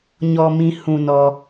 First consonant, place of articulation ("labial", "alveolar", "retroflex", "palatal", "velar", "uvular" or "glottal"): palatal